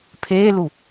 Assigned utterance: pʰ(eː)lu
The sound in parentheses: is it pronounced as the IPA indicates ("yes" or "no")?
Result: yes